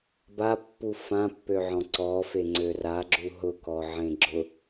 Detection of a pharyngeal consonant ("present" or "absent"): present